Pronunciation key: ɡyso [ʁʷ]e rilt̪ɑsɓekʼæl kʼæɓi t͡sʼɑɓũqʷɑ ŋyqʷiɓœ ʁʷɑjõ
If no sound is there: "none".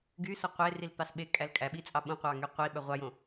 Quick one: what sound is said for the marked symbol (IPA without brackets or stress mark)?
qʷ